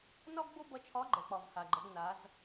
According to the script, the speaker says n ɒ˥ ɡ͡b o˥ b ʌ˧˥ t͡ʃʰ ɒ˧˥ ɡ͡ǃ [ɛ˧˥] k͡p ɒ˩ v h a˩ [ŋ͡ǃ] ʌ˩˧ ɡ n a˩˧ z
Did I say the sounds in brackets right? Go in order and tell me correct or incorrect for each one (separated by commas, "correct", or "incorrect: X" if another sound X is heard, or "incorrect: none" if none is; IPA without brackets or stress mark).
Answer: incorrect: ɛ˩, incorrect: ɡ͡ǃ